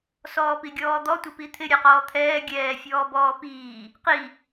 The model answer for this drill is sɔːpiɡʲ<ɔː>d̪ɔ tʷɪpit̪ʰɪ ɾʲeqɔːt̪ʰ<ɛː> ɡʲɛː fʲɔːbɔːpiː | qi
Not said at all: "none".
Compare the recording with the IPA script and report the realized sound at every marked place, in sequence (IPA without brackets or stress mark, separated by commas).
ɔː, ɛː